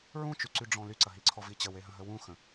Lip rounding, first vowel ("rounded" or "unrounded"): rounded